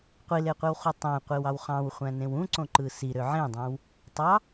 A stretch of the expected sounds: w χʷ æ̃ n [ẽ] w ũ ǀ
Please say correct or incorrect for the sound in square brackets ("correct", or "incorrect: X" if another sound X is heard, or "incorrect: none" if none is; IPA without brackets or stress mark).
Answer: correct